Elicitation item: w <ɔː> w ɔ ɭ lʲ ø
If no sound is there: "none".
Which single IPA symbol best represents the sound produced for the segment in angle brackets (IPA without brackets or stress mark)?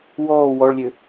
ɔː